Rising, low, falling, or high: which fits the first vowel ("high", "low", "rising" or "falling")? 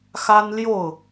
high